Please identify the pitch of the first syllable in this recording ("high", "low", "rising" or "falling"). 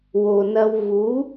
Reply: low